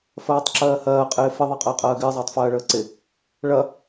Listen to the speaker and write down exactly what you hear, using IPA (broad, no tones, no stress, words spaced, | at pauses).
fɜːtˤǁɜːhɜː qʼɪːfɪ ðˤɜqʼəːqʼɜːɡɪː zˤəːtˤfɜːɭəːǀɪ | ɭɐ